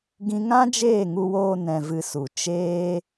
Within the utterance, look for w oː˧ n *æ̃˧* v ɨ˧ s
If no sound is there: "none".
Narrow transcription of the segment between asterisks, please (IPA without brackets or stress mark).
ɛ̃˧